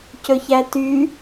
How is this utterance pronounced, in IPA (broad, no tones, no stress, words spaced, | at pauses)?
cɵçæty